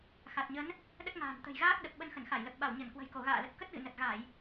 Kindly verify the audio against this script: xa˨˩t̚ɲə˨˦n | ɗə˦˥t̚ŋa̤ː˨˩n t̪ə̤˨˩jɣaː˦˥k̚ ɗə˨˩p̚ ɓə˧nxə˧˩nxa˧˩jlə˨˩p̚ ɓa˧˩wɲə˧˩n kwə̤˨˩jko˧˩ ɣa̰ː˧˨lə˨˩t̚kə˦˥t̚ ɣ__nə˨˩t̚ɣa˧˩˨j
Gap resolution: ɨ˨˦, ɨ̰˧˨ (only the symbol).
ɨ̰˧˨